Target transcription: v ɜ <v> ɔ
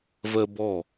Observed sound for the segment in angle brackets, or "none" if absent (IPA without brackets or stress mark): b